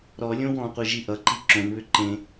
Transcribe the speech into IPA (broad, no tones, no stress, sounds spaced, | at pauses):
ɾ ɔ lʲ õ w ɔ̃ qʷ i ʒ i ʔ ʌ ǃ i ǁ õ n β ʏ ǃ ẽ